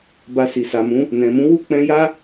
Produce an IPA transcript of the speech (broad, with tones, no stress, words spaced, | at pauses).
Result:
ba˨ si˨sa˨mũ˨˦ | nɛ̃˨mũ˨˦wu˦˨ k͡pɛ̃˧ja˦